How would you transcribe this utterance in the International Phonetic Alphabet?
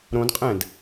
ɾ õ d qʼ ɛ̃ d

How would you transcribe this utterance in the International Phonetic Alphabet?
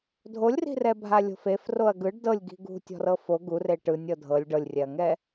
dʱ o lʲ r i̤ r ɛ bʱ a lʲ o̤ f e f r o ɐ̯ ɡ ɯ ɖ d ɤ lʲ ɡ i̤ ɡ ṳ tʲ ɔ̤ r ɤ f o ɡ u r e ʈ ɯ nʲ ɤ dʱ ɤ lʲ ɖ ɤ lʲ rʲ ɛ ɐ̯ ŋ ɛ

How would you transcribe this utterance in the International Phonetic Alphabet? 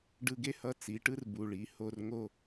ɖ ɯ˧ ɡ e˥ h ʌ˧˥ t͡s i˩˧ ʈ ɯ˥ r b u˩ ɭ i˩˧ h o˧ r ŋ o˧

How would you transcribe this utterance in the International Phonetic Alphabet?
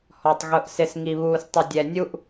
h ɔ˨ tˤ ɣ ʊ˨ ʔ s ɪ˨ s ŋ i˨ β uː˨ s tˤ ɪ˨ dʲ ɛ˨ nʲ u˦ ʔ

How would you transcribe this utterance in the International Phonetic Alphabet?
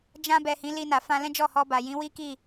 d͡ʒ ã˧ b ɛ˨ h ĩ˨˦ l i˧ n a˨ f ã˧ l ɛ̃˦ d͡ʒ ɔ˦˨ h ɔ˧ b a˨ j ĩ˨˦ w i˦ k i˦˨

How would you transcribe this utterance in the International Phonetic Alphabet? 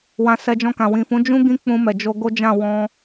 w ã˨ s ɛ˧ d͡ʒ ɔ̃˧ k ã˨ w ĩ˨ f ũ˨˦ d͡ʒ ũ˦ ɡ ĩ˦ k͡p ũ˧ m ɛ˨ d͡ʒ o˧ ɡ o˦ d͡ʒ ã˦˨ w ɔ̃˧

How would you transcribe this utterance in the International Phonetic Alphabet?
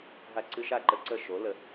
ɦ a˧ ǀ ɨ˧ ʃ a˥˩ ǃ ə˧ ǀ ə˥˩ ʃ o˩˥ l ə˩

